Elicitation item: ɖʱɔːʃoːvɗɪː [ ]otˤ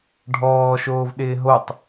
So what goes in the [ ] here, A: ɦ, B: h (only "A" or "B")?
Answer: A